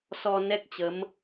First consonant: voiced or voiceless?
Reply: voiceless